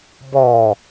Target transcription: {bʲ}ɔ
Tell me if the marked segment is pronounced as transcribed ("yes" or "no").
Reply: no